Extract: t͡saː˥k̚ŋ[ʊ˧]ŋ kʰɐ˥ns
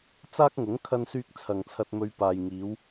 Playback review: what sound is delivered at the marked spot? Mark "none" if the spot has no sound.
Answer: ʊ˨˥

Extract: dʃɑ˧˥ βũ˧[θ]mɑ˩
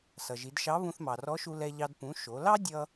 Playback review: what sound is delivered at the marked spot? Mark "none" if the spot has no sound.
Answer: θ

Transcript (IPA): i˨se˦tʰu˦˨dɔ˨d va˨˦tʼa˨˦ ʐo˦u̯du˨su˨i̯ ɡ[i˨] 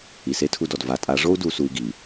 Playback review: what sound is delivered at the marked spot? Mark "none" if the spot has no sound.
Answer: i˨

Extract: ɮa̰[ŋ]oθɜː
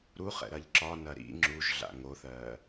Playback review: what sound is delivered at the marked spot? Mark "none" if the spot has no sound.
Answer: ŋ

